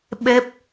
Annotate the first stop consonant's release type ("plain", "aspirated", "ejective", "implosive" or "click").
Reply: implosive